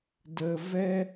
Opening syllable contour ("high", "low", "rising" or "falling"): low